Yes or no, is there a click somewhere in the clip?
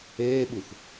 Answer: no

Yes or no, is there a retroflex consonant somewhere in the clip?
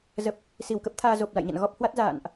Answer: no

